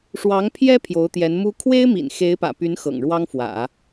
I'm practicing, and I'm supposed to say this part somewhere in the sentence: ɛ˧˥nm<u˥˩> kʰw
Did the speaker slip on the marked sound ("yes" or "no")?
yes